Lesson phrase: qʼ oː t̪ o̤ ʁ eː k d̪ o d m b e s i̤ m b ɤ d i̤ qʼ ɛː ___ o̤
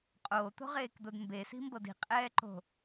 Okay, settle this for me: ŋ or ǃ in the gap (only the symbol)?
ǃ